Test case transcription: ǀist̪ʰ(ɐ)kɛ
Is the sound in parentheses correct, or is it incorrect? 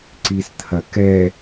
correct